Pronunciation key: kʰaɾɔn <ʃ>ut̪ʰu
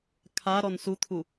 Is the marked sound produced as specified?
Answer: no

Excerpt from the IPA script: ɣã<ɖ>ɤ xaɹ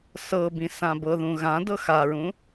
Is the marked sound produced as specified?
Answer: no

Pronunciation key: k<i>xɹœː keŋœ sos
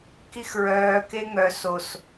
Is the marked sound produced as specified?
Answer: yes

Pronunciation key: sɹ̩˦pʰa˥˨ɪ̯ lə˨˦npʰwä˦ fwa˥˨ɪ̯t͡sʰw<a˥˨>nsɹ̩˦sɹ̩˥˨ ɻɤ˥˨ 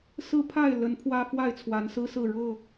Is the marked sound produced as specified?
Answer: no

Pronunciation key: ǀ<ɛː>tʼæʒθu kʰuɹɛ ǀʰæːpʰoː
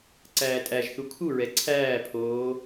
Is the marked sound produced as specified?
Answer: no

